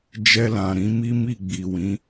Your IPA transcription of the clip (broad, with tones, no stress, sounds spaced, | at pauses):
d͡ʒ ɛ˧ l ã˨ ɾ ĩ˨˦ m i˦ m i˦˨ ɡ͡b i˨ w ĩ˨˦